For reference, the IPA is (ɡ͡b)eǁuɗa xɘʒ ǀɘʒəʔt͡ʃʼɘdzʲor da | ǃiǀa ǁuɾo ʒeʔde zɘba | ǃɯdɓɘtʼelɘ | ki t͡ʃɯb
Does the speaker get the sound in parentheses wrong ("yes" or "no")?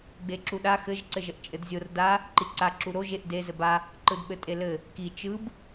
no